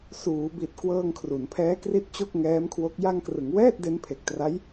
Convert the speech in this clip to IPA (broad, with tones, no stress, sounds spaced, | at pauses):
s uː˩˦ b i˨˩ t̚ k w ɤː˧ ŋ kʰ r u˩˦ n pʰ ɛː˦˥ k r i˦˥ t̚ t͡ɕ o˥˩ k̚ ŋ ɛː˦˥ m kʰ w o˦˥ k̚ j a˧ ŋ k r ɯ˩˦ ŋ w ɛː˥˩ t̚ d e˦˥ n pʰ e˨˩ k̚ t r a˦˥ j